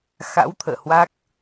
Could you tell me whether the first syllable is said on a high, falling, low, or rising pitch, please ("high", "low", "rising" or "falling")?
rising